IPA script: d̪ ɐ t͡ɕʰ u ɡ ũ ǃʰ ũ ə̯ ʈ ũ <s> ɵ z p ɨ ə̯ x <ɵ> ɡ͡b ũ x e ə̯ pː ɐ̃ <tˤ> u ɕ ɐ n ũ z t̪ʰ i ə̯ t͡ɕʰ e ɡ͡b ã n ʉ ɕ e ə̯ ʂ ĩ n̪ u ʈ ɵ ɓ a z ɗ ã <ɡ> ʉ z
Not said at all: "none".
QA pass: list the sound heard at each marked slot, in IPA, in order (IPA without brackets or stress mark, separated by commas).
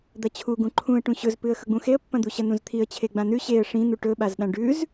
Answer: ɕ, ɵ, d̪, ɖ